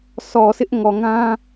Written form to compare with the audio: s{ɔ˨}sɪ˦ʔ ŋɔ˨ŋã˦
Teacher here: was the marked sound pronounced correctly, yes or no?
yes